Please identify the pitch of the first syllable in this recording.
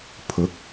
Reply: rising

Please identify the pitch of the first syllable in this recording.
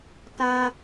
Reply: high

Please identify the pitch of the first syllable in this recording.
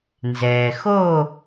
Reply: low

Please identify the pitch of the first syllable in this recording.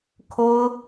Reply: high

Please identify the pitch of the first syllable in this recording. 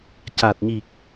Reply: low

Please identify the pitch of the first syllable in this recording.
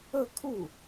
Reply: falling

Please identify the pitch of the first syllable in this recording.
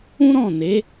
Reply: high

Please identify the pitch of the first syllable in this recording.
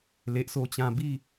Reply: low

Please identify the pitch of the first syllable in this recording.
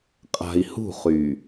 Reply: low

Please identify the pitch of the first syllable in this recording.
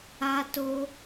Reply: high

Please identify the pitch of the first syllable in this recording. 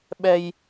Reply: high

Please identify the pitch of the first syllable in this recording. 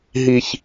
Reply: low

